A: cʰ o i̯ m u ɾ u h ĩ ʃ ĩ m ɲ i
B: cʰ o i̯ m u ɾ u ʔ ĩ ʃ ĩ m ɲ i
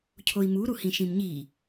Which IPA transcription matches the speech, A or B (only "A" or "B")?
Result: A